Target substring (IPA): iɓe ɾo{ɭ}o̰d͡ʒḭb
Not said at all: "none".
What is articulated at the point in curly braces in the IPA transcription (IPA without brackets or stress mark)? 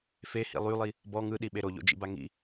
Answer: ʎ